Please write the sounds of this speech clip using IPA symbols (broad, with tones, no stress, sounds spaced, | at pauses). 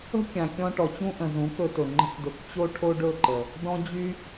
ə̤˦ kʲ ã˨ kʲ ɔ̃˧ ʈ ɔ˨ t͡ɕ ũ˦ ʔ ə̃˨ z ũ˨˦ k ɵ˧ t ɵ˨ ŋ͡ǃ ə̤˦ k d ɵ˧ k t͡ɕ o˦ ʈʰ o˦ ɖ ɵ˦˨ ǃ ə˨ | d ɔ̃˦ d͡ʑ y˦